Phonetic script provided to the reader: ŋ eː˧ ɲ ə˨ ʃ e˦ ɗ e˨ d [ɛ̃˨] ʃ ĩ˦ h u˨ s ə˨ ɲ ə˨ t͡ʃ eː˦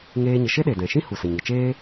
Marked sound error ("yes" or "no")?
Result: no